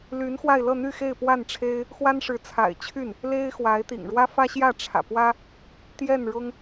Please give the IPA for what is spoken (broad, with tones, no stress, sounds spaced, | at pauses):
l y˧˥ n x w a˥˧ ɪ̯ l ɤ˥˧ n̪ y˥˧ x e˥˧ ɪ̯ p w a˥˩ n ʈ͡ʂʰ e˥ ɪ̯ | x w a˥ n ʂ ɻ̩˧˥ t͡sʰ a̰˨˩ ɪ̯ t͡ɕʰ y˥˩ n | l e˥ ɪ̯ x w a˧˥ ɪ̯ t̪ ḭ˨˩ ŋ ɻ w ä˥ f ä˥ ɕ j ä˥˩ ʈ͡ʂʰ ä̰˨˩ p w ä˥ | t̪ j ɛ˥˩ n ɻ ʊ˥ ŋ